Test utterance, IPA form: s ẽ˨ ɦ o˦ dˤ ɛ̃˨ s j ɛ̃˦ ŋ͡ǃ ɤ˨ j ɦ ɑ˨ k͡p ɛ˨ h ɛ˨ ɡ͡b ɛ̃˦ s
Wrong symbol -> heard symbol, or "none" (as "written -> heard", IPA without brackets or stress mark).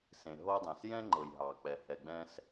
none